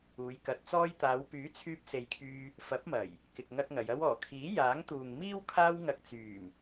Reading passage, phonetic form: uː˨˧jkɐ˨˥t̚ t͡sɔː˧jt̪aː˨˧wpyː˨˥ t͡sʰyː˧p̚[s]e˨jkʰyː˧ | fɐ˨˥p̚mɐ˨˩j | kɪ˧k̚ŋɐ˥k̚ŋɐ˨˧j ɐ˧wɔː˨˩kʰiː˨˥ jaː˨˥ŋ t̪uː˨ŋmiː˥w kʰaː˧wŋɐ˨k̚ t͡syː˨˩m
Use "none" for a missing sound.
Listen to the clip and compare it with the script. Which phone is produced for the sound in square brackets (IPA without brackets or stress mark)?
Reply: s